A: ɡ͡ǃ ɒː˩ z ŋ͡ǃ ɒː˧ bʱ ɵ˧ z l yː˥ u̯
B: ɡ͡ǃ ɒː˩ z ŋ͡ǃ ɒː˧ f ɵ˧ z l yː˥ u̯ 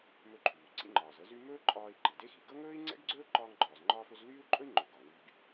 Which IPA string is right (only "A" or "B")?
B